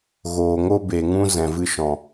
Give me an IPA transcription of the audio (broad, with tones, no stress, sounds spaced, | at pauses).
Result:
ɣ oː˨ ŋ o˦ b e˨ ŋ ũ˦ z ɛ̃˨ v ɨ˦ ʃ ɔ̃˨